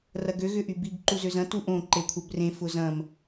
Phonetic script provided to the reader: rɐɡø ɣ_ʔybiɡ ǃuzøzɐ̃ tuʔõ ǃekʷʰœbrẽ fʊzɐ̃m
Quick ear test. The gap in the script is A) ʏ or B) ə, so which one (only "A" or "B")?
A